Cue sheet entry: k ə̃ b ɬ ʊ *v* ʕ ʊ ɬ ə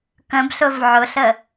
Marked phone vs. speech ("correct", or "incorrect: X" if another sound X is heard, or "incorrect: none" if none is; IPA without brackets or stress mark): correct